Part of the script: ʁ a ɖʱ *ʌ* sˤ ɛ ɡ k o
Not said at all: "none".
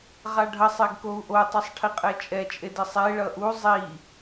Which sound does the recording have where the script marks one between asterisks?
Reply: ʌ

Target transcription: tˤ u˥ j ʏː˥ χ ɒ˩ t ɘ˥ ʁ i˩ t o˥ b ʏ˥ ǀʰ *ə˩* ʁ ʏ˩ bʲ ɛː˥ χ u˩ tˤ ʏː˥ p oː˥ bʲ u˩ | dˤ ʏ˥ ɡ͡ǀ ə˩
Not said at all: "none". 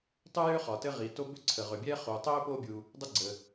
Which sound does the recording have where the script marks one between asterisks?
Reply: ə˩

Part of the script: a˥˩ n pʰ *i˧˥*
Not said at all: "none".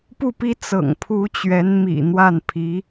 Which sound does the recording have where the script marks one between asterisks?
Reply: i˧˥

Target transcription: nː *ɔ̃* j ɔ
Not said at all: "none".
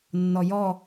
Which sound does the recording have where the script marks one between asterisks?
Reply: ɔ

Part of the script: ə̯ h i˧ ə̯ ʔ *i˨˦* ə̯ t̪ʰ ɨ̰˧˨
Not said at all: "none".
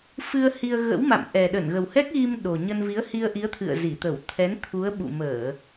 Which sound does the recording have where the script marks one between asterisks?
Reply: i˨˦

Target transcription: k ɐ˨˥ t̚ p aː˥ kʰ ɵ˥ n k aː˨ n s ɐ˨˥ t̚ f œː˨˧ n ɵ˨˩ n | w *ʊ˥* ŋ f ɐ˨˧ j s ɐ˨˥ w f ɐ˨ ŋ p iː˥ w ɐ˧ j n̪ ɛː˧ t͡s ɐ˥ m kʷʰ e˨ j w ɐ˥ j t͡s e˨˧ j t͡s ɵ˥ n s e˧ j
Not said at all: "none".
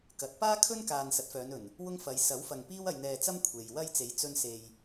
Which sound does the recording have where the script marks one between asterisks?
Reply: ʊ˥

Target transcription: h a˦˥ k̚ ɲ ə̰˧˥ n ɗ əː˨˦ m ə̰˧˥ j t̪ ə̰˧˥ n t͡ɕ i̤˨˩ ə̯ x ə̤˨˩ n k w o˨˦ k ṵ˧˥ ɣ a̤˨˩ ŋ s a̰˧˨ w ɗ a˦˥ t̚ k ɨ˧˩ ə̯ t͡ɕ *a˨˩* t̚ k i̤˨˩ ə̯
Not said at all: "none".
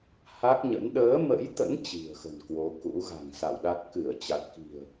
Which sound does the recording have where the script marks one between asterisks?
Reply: a˨˩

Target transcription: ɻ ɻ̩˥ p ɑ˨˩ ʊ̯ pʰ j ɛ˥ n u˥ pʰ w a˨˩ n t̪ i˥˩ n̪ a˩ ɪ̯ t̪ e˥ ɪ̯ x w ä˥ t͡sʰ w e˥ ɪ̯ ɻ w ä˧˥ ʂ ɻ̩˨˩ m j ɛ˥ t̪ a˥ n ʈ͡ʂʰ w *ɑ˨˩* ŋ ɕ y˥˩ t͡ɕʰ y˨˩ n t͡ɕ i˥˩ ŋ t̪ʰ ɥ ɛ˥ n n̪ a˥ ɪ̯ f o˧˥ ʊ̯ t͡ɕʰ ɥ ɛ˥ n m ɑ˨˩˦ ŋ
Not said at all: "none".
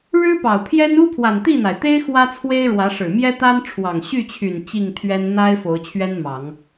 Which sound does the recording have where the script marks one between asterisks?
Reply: ɑ˨˩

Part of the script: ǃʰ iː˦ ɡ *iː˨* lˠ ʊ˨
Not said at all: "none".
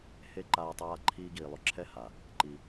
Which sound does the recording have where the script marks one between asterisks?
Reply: iː˨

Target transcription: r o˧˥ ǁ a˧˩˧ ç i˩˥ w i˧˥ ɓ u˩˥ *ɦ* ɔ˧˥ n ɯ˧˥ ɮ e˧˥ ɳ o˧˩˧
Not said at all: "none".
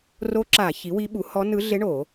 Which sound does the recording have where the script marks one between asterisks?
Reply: h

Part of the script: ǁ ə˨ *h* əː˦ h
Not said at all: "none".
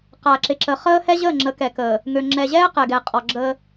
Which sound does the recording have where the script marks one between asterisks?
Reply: χ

